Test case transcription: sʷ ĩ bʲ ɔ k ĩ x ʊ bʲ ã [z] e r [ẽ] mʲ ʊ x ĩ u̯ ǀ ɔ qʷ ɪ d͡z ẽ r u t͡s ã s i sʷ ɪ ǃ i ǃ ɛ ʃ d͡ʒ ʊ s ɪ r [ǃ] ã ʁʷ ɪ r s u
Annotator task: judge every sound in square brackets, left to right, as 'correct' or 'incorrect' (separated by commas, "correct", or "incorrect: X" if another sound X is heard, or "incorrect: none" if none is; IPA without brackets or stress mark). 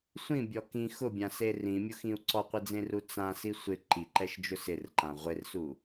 incorrect: s, incorrect: ĩ, correct